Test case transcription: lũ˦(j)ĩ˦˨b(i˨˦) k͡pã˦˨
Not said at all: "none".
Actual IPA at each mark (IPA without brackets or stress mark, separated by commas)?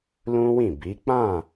w, i˨˦